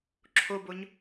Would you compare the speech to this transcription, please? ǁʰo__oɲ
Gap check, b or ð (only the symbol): b